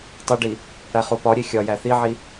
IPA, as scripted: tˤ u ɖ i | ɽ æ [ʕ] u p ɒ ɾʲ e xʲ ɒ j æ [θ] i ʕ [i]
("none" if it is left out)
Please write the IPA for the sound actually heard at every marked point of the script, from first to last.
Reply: χ, θ, i

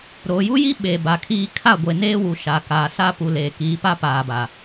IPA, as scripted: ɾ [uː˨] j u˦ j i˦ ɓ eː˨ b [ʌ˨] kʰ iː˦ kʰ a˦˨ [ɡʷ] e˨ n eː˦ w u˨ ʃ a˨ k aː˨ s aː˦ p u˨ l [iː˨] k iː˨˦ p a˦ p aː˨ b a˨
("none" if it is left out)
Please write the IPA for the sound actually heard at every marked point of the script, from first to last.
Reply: oː˨, a˨, ɡʷ, eː˨

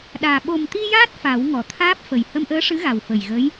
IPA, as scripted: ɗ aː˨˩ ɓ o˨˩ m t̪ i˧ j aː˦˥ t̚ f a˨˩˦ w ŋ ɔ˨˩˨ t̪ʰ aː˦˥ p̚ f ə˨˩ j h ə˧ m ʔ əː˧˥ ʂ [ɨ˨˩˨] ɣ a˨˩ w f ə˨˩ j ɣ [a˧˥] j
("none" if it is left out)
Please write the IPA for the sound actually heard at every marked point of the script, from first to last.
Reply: ɨ˧˥, ə˧˥

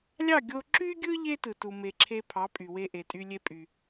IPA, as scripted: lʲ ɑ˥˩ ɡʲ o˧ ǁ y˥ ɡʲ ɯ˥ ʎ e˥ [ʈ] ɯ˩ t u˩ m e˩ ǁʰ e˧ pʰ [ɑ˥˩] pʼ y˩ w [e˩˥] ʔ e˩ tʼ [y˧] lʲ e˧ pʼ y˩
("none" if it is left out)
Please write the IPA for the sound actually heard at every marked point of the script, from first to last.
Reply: t, ɑ˩˥, e˧, y˧

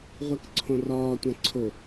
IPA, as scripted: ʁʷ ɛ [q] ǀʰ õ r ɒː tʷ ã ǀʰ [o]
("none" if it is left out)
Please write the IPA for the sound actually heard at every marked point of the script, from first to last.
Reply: k, o

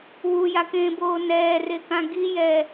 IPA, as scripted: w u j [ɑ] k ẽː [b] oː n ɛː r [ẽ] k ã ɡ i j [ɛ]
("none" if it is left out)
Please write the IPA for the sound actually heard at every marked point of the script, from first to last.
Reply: a, b, e, ɛː

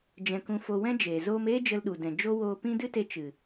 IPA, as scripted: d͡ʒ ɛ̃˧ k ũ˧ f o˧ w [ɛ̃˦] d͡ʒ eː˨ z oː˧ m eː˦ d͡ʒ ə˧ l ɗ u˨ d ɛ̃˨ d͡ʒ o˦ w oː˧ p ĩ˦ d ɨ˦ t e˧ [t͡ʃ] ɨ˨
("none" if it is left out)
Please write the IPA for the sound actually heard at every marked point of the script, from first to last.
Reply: ɛ̃˦, t͡ʃ

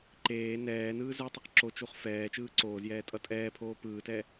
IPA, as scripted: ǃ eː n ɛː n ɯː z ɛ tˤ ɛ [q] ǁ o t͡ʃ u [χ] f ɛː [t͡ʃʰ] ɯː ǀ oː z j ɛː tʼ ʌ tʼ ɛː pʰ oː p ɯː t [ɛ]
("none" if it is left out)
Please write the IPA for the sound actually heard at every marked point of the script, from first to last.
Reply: q, χ, t͡ʃ, ɛ

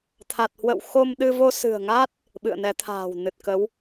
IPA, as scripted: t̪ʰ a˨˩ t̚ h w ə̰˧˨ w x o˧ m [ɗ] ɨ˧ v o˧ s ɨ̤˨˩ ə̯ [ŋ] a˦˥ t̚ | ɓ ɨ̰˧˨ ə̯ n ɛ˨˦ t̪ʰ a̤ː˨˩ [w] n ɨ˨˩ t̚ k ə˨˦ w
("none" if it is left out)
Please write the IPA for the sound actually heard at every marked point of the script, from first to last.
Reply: ɗ, ŋ, w

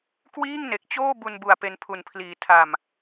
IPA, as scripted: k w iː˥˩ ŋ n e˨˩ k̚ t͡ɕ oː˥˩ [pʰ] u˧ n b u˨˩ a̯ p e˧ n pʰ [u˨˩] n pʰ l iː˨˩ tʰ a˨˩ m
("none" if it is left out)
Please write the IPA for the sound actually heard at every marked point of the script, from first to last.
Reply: b, u˨˩

